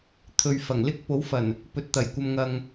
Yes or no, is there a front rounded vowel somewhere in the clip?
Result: no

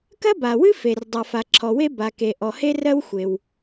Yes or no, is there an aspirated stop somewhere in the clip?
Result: yes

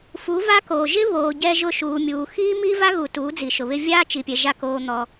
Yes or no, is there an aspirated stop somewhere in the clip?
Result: no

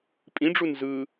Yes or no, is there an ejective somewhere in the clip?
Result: yes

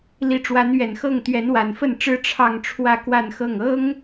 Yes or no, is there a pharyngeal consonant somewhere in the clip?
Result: no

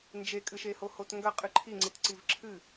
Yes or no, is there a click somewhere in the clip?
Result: yes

